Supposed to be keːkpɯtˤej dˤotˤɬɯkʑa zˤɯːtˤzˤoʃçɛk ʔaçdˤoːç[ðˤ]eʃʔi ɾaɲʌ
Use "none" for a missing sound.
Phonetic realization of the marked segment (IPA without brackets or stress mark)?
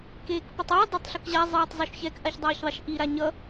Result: ðˤ